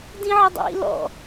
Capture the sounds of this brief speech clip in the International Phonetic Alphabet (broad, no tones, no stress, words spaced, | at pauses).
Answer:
dĩʕədˤḭ lɔ̰